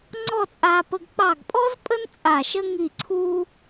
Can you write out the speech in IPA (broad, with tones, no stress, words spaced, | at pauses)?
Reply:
ŋ͡ǀɔ˥˧t͡sʼaː˧pə˧ɡ k͡pɑ˧˩ɡpʼɔ˥z pʼə˥n t͡sʼa˧˩ʃə˥ ŋi˧˩ǀʰu˧